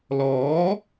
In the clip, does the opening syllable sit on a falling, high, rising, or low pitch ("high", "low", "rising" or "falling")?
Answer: rising